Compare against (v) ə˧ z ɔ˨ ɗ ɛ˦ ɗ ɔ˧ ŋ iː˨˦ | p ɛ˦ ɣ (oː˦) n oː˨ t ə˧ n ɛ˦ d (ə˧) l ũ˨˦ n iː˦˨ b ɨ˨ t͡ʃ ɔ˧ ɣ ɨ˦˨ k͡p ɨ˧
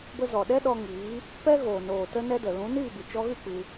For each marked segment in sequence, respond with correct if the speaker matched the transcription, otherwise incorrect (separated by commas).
incorrect, incorrect, incorrect